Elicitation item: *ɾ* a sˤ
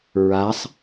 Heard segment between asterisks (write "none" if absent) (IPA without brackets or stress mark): ɹ